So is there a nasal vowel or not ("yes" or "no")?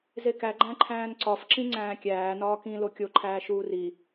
yes